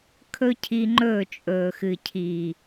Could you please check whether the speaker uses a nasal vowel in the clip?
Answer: no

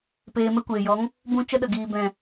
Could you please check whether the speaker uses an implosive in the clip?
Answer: yes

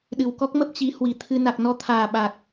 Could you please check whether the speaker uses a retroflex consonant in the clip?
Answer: no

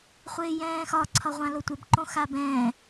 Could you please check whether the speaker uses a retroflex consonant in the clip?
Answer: no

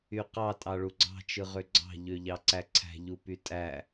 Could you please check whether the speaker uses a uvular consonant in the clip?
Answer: yes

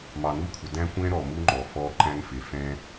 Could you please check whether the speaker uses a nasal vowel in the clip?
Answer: yes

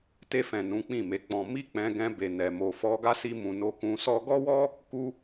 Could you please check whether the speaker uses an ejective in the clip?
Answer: no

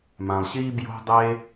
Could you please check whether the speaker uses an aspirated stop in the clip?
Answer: no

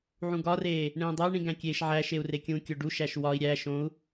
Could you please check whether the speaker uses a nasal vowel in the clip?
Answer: yes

